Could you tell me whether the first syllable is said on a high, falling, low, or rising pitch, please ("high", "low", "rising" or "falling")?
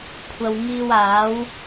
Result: low